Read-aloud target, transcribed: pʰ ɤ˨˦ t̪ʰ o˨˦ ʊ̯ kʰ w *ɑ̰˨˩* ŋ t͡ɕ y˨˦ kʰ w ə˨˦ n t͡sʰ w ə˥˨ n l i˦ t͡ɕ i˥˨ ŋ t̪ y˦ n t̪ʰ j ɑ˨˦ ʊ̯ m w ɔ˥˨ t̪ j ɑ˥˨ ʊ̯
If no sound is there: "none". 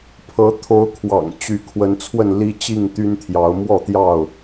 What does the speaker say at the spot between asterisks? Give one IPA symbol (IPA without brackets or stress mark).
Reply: ɑ̰˨˩